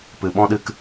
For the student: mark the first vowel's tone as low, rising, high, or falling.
low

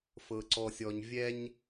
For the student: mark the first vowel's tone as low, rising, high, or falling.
low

